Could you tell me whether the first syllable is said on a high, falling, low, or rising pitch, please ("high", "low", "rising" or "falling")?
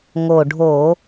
low